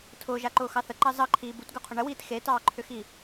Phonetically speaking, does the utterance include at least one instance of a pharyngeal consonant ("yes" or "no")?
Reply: no